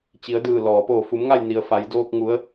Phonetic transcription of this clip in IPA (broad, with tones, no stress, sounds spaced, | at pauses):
t͡ɕ i˩˧ ə̯ d ɯː˧˩ l ɔː˩ p oː˧˩ f u˩˧ m ŋ a˥˨ j n i˩ ə̯ f a˩˧ j d oː˧ k̚ ŋ u˩˧ ə̯